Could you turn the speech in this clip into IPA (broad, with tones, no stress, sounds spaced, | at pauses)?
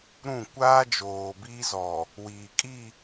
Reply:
ɾ ũ˦˨ kʷ aː˦ d͡ʒ oː˨ b iː˦ z ɔ˨ | w iː˨ kʼ i˦˨